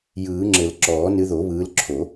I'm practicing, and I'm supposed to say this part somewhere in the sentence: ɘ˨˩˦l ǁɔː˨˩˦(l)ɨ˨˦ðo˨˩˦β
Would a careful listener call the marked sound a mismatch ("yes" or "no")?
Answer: yes